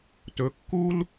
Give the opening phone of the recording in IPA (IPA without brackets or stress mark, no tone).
t